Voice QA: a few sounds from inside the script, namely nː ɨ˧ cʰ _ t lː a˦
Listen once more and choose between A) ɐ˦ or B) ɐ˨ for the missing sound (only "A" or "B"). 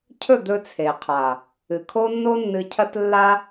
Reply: A